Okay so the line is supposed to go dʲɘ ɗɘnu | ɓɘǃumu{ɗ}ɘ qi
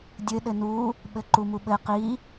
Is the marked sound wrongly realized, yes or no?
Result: yes